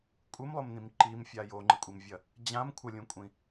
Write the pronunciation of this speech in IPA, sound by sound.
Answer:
kʷʼɨmlˠomnĩm ǃimfʲa joŋ͡ǃɨkʷʼimvʲɐ | d͡ʑãm kʷʰɐlʲũkʷʼĩ

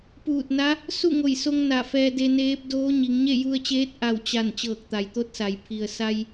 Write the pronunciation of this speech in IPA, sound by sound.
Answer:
puː˧˩t̚na˧˥ | su˥˨ŋo˧˩jso˧ŋ na˧˩fɛː˧de˧neː˧˥p̚ doː˧˥ ɲi˩˧ŋɲe˥˨ju˧ə̯t͡ɕeː˧˥t̚ ʔa˧˩wt͡ɕa˧˩n t͡ɕɤː˧˩k̚t̪a˩jt̪o˧˥t̚sa˩j pʰi˩ə̯ sa˧j

